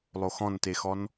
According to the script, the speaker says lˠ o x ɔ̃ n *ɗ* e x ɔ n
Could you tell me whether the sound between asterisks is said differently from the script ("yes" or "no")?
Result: yes